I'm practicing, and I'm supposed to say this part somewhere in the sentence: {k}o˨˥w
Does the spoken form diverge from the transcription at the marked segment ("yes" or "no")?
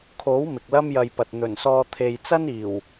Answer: yes